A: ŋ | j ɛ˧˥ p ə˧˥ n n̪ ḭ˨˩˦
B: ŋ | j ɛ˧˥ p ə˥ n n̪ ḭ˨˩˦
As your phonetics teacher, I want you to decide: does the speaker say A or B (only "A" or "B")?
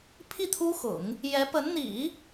A